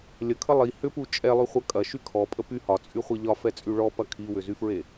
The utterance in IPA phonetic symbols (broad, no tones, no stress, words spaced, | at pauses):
lʲəkʰə lˠi hʏpu t͡ʃʼɛlˠyχʷɐ kʼɐʃy kʰɔpʼə py hɒt͡sʼyχʷe ʎɒfɛt͡sʼy ɭɔpɐ kʰiwʏzyfɹe